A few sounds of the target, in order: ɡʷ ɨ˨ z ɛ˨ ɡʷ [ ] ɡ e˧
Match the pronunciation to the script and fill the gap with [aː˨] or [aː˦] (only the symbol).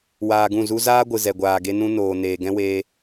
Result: aː˨